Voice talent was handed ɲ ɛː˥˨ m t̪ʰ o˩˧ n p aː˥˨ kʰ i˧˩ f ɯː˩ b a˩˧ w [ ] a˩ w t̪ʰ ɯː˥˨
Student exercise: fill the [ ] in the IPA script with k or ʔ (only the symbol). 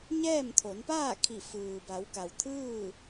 k